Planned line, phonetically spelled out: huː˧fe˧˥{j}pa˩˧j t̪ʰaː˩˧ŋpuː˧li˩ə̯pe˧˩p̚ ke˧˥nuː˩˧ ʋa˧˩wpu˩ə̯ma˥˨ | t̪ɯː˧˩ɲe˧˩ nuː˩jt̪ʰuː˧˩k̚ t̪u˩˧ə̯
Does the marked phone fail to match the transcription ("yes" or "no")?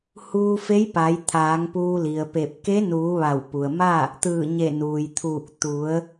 no